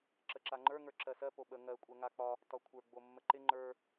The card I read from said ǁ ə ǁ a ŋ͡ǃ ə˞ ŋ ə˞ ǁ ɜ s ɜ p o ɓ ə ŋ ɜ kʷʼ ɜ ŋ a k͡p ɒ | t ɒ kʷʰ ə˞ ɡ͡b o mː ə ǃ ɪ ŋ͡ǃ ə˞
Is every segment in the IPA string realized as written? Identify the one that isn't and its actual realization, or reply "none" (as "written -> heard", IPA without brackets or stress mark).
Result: none